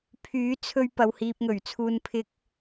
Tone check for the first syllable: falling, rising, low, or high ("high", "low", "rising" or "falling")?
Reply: rising